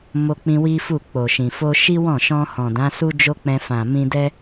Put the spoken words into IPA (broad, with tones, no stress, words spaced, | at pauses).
mo˧k͡pĩ˧ wi˦fu˦˨k͡po˨ʃĩ˨ fo˧ ʃi˦wɔ̃˦˨ʃɔ̃˧ hɔ̃˨dã˨˦su˦ d͡ʒo˦k͡pɛ̃˧ fã˨ mĩ˧dɛ˦